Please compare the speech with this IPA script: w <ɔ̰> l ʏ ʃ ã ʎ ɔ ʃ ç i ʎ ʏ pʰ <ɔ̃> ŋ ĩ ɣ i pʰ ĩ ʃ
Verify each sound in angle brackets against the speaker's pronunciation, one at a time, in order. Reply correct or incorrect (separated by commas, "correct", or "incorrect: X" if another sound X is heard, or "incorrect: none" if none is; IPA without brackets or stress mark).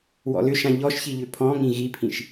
correct, correct